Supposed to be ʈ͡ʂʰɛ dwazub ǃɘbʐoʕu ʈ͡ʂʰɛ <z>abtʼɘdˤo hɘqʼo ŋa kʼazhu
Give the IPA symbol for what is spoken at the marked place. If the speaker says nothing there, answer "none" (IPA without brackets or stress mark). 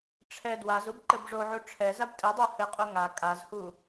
z